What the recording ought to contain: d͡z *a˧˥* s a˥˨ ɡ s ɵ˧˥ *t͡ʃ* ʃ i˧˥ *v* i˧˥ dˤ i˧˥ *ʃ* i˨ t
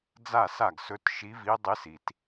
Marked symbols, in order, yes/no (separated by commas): no, no, yes, no